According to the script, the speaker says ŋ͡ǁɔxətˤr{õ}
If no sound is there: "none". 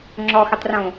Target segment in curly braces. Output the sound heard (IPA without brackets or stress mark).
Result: õ